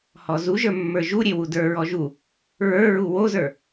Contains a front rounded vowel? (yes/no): no